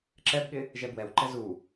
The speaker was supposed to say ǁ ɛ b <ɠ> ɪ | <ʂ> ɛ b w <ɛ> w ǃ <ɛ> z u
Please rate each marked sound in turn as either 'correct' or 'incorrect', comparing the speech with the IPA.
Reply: correct, incorrect: ʒ, correct, correct

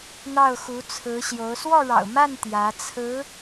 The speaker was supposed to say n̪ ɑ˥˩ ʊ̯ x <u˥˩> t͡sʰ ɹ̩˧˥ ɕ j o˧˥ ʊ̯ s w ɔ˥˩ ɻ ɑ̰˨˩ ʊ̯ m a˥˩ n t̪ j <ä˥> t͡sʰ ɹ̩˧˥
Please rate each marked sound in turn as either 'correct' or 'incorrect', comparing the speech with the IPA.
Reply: incorrect: u˧˥, incorrect: ä˧˥

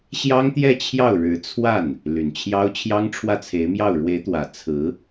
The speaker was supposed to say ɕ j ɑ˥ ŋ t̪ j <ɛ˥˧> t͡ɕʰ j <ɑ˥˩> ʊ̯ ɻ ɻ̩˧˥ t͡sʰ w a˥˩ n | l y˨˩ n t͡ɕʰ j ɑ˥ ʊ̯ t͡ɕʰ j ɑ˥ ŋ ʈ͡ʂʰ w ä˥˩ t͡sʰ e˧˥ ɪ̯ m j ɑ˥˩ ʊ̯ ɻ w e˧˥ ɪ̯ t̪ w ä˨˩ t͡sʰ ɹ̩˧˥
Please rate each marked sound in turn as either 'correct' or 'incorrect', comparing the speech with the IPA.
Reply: correct, correct

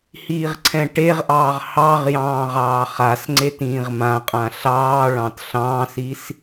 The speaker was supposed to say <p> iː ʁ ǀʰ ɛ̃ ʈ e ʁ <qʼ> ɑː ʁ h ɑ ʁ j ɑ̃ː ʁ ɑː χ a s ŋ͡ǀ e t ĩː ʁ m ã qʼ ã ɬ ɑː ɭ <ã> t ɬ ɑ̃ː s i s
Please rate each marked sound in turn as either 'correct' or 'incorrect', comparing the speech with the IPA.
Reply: incorrect: h, incorrect: ʔ, incorrect: ɑ̃

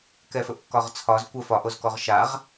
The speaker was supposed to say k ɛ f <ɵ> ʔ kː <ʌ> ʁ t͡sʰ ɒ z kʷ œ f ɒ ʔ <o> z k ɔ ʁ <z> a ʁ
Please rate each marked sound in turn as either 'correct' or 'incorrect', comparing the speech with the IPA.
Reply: correct, incorrect: ɒ, correct, incorrect: ʃ

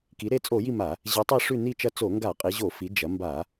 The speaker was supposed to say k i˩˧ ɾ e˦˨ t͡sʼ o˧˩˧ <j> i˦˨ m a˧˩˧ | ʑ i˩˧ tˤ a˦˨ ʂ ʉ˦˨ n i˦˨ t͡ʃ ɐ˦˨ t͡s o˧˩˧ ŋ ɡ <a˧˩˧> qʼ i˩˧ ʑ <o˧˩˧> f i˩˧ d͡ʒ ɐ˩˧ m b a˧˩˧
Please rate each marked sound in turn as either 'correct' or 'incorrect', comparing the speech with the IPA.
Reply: correct, correct, correct

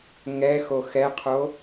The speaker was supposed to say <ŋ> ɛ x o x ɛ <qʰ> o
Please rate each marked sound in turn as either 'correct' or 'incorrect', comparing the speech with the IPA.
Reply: correct, correct

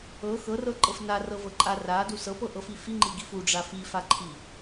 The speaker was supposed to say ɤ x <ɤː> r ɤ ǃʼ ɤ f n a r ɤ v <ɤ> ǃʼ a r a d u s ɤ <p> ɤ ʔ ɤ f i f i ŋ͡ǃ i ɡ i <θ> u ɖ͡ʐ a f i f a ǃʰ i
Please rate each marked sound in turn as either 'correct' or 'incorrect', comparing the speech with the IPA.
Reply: incorrect: ɤ, correct, correct, incorrect: f

